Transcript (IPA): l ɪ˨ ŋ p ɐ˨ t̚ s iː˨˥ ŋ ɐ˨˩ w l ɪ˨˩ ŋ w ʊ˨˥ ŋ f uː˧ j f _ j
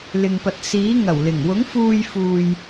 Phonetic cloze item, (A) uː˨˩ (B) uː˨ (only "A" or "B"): B